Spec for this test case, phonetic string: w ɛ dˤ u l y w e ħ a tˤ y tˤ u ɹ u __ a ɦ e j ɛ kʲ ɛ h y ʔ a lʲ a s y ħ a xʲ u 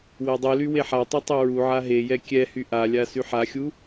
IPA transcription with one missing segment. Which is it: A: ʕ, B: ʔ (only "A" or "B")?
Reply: A